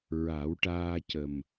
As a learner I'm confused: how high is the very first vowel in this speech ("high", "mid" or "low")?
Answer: low